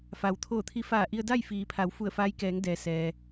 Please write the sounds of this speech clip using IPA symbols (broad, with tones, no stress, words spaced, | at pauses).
fa˩wt̪ʰoː˧˩t̪ʰi˧ faː˧˩ʔi˧ə̯ da˥˨jfiː˩˧pʰa˩˧w fu˧˩ə̯faː˧˥jkɛː˩˧ŋ dɛː˩ sɛː˩